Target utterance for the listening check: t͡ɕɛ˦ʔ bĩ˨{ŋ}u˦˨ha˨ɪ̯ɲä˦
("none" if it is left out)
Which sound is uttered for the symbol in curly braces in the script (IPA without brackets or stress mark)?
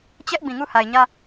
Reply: ŋ